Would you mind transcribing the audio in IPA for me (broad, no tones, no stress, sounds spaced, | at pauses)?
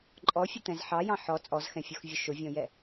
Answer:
ǃʼ ɔ fʲ ə t̪ ɛ̃ z ħ ɑ j ɑ̃ ħ ɔ t͡sʼ ɔ z x ɛ̃ fʲ o x vʲ ʊ ʃ ʊ vʲ ɔ̃ j ɛ